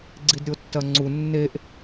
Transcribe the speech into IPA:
ɡ͡ǀ i d ɾʲ o tː ɐ ŋ͡ǀ u nː e ʔ

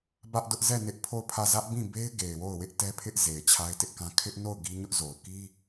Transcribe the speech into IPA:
b ä˦ ʔ d ʊ˦ ʔ z ɛ˦˨ n ɪ˦ ʔ pʰ o˦˨ ʊ̯ pʰ ä˦˨ z ä˦ ʔ b ĩ˦˨ b e˦ ɪ̯ ɡ e˨ ɪ̯ w o˦˨ ʊ̯ w ɪ˦ ʔ t ɛ˦ pʰ ɪ˦ ʔ z e˨ ɪ̯ t͡ɕʰ a˦ ɪ̯ t ɪ˦ ʔ k ã˦ kʰ ɪ˦ ʔ n o˦˨ ʊ̯ ɡ i˦ ɲ ʊ˦ ʔ z o˨ ʊ̯ k i˦

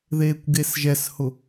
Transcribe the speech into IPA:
ð eː kʷ ɡ e s ʒ ɛ s h ʊ

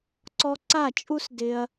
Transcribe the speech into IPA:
ǀ ɔ˧ ǀ a˦˨ t͡ʃʼ u˦ s d ɪ˧ ɐ̯

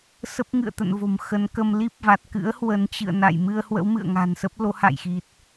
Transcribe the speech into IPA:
s ə˦˥ p̚ ŋ ɨ̰˧˨ ə̯ t̪ ə̰˧˨ n v o̤˨˩ m x ə˨˦ n k ə˧ m l i˦˥ p̚ v a˨˩ t̚ k ɨ̰˧˥ ə̯ h w ə˨˦ n t͡ɕ ɨ̰˧˨ ə̯ n a̰˧˨ j m ɨ˧ ə̯ h w ə̰˧˥ w m ɨ̰˧˨ ə̯ ŋ a̤˨˩ n s ə˦˥ p̚ l o˨˦ h a̰˧˨ j x i˨˩ t̚

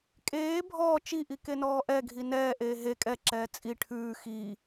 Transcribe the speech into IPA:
kʼ eː bʱ ɔː t͡ʃ i ʔ i k e n ɔː ʔ ɛ ɡʱ i n ɛː ʔ eː ɦ e kʼ ɛ ǁ ɛː t͡sʼ i ʈʰ ʉː x iː

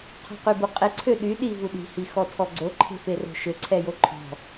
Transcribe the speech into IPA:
qʰ ɔ̤ q y b u qʼ e ǀʰ ø ɗ y ɗ i v u ɗ i̤ h i x ɔ tʰ ɔ ɡ͡ǀ o ǃʰ e̤ f e r o̤ ʃ ø ǀʰ ɛ j o ǃʰ ɔ̤

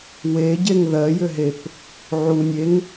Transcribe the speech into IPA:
w e ɟ e ŋ ð ɜ j ʏ ɦ e p | ʕ u nʲ e ŋ

